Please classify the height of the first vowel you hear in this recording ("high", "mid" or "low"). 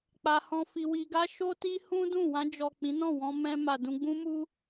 low